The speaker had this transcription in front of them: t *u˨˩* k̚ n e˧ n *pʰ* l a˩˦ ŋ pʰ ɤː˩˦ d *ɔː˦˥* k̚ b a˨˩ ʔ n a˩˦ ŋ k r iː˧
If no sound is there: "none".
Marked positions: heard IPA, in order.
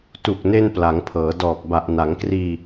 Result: u˨˩, p, ɔː˨˩

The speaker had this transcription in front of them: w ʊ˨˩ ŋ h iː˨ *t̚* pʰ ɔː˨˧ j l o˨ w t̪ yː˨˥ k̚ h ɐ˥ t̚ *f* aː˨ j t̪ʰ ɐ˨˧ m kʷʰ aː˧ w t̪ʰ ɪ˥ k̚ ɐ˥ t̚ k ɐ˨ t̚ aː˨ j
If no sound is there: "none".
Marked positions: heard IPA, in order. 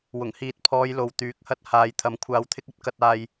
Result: t̚, h

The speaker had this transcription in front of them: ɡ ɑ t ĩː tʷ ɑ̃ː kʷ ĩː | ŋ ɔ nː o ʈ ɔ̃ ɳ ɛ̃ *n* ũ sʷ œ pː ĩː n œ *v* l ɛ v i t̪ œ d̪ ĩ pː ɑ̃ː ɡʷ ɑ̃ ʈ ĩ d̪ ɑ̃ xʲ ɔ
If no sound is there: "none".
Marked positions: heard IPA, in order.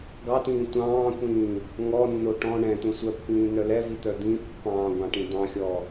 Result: t̪, none

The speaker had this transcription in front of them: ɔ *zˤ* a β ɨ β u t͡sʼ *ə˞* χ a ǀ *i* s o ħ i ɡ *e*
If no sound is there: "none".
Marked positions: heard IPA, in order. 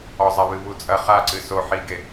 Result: zˤ, ɐ, ɨ, e

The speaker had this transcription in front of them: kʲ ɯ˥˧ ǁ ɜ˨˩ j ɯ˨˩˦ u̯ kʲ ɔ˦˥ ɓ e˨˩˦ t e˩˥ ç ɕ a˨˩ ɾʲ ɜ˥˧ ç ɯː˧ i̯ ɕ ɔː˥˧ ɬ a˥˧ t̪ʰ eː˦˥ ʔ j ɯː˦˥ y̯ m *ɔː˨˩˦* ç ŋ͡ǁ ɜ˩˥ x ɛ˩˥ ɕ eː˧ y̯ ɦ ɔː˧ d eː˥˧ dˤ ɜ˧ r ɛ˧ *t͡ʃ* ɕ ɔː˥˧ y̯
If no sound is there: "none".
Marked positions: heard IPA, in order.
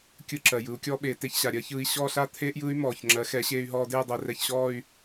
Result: ɔː˨˩, ç

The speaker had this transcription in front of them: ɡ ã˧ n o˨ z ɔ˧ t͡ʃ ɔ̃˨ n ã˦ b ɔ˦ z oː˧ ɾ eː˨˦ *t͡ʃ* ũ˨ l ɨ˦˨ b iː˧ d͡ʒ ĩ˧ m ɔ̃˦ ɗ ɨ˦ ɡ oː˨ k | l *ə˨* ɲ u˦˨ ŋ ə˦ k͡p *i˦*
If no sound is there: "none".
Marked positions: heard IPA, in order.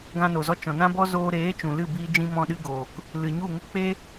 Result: t͡ʃ, ɨ˨, e˦

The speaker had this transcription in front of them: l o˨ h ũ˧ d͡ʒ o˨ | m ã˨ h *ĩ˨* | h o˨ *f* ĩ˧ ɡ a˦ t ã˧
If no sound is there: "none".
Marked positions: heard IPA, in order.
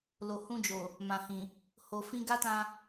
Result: ĩ˨, f

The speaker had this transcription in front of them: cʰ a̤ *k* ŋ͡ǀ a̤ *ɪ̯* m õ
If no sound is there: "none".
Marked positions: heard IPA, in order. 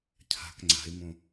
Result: k, ɪ̯

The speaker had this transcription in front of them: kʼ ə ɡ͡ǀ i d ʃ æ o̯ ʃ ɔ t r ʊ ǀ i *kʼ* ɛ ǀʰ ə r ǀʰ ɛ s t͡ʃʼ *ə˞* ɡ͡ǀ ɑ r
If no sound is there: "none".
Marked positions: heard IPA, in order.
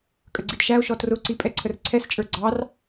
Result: pʼ, ə˞

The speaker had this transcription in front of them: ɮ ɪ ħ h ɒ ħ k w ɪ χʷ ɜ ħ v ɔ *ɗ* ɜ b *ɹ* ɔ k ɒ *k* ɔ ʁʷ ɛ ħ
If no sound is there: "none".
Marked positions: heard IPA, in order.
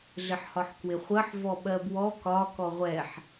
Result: ɓ, w, k

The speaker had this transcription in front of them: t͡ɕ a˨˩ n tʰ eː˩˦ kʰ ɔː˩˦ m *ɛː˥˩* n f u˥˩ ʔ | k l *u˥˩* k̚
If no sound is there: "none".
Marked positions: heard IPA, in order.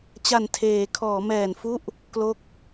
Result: ɛː˨˩, o˥˩

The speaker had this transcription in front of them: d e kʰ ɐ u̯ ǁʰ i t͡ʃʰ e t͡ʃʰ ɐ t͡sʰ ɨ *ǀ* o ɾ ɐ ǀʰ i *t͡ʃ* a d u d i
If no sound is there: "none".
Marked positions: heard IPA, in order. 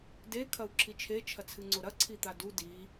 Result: ŋ͡ǀ, t̪

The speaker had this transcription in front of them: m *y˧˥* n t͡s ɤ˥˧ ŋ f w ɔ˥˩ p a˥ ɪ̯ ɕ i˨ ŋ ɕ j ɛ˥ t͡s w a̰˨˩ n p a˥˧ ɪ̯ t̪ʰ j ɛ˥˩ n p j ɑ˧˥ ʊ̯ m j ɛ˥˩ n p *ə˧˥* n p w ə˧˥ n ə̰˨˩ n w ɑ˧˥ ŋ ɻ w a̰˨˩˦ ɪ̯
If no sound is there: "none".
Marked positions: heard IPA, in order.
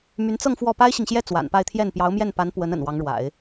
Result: y˧˥, a˧˥

